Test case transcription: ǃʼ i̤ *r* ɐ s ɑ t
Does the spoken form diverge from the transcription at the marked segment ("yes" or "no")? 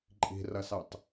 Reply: no